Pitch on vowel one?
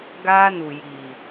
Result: high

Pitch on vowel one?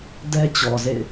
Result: high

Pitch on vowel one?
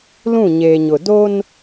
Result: falling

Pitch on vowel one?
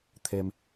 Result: low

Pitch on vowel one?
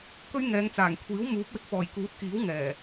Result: high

